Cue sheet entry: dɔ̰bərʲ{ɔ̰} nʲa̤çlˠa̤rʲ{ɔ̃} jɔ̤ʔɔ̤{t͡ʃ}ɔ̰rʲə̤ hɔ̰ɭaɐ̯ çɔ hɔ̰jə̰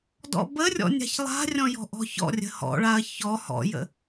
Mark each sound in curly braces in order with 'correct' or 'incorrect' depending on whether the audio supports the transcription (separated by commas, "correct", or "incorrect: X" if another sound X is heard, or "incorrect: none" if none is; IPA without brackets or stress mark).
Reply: correct, correct, incorrect: ç